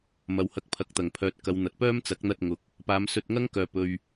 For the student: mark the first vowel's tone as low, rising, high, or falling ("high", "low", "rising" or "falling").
low